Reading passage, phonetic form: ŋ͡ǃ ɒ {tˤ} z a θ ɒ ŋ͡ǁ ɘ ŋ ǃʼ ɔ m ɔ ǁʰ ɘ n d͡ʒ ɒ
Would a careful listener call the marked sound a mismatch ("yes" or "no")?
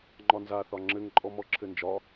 yes